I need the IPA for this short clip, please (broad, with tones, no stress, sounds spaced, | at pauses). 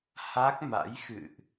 h a˦˥ k̚ m a̰˧˥ j x ɨ̰˧˨ ʔ